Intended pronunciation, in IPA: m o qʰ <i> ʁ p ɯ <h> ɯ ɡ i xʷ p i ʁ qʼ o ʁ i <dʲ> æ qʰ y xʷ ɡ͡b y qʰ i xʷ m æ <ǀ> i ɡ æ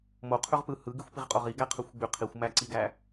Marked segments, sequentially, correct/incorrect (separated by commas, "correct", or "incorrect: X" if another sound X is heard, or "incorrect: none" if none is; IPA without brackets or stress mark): incorrect: y, correct, incorrect: ɡ, correct